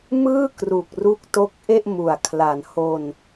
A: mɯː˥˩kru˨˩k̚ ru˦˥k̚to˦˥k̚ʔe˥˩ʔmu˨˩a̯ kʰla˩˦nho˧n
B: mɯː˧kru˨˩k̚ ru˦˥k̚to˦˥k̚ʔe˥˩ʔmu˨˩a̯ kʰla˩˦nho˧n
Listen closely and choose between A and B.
A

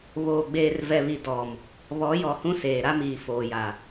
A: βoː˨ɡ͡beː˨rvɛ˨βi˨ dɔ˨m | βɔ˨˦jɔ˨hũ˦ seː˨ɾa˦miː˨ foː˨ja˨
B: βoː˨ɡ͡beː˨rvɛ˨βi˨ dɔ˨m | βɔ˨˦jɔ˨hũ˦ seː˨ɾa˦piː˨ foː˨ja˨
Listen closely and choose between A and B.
A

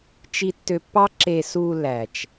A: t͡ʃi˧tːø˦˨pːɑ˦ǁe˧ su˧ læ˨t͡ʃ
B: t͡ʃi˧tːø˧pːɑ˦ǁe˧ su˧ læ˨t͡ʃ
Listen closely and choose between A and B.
B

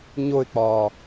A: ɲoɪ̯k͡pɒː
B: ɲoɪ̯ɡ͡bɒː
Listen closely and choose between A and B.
A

